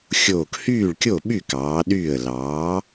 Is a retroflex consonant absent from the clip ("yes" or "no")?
no